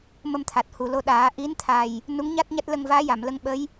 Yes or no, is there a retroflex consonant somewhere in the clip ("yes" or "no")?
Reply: no